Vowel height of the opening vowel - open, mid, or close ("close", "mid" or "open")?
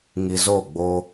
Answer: close